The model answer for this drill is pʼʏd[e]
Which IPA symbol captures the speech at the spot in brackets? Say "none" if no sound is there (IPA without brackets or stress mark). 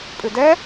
ɛ